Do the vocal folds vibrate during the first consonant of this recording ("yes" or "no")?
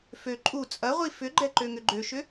no